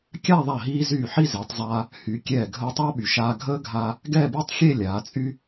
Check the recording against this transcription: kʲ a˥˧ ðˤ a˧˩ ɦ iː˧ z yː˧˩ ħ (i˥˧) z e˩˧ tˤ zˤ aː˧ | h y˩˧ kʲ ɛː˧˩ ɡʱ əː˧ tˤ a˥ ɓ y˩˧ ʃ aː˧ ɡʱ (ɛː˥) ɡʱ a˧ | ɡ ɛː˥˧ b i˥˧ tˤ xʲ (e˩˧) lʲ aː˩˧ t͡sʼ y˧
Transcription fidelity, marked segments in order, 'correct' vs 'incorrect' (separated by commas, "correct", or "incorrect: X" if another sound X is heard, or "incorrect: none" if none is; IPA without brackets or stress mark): correct, incorrect: əː˥, incorrect: e˥˧